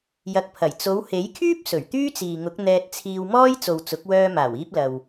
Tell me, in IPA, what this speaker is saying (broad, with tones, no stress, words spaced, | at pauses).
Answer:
jɐ˨˥k̚pʰɐ˨˩j t͡so˨˧whe˨˥jkʰyː˥p̚ sɵ˨˩ɥt̪yː˥t͡siː˨ŋʊ˨˥k̚ n̪ɛː˧t̚t͡sʰiː˧wmɔː˥j t͡so˨wt͡sʊ˨˥k̚wœː˧ maː˨˩wiː˧p̚ lɐ˨w